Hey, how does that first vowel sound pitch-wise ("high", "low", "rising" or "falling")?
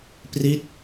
falling